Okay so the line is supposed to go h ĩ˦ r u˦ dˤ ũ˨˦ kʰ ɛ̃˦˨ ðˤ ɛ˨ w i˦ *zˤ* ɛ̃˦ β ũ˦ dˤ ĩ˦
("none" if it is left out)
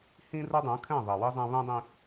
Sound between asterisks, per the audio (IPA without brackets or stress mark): zˤ